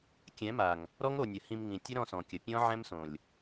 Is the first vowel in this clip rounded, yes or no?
no